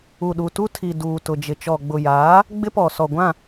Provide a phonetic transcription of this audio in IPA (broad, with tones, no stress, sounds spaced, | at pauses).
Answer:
u˨ ɗ u˨ t u˦ tʰ i˨ d uː˨ t ʊ˨ d͡ʒ ɪ˨ t͡ʃ ɔ˨ ɡ͡b ʊ˨ j aː˨˦ | ɡ͡b ɪ˦ p ɔ˨ s ɔ˨ ɡʷ ã˦˨